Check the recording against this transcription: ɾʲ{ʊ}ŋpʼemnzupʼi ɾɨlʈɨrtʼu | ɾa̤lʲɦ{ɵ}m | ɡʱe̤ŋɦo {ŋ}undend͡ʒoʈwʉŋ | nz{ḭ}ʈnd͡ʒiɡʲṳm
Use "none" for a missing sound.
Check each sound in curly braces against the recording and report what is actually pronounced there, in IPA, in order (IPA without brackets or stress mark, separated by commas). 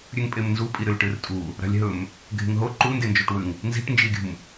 ʉ, ɵ, ǃ, i̤